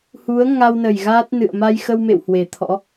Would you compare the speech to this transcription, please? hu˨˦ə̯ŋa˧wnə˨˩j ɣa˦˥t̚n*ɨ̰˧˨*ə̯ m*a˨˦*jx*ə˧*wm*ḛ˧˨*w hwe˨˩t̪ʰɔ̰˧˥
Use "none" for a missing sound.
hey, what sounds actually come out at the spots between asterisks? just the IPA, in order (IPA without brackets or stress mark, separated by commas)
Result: ɨ̰˧˨, a˧, ə˧, ḛ˧˨